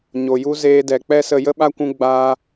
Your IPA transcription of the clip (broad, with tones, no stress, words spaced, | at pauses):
ɲo˨ju˧ zeː˧dɛ˨k͡pɛ˦sə˧ jə˦ɓa˦kʷũ˧ ɡ͡baː˧